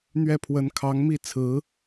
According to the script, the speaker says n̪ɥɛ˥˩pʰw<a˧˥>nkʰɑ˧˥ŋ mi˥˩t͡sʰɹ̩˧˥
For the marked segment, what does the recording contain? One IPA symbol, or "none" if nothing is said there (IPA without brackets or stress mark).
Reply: ə˧˥